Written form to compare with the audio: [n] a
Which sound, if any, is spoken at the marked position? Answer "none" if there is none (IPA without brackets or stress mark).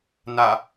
n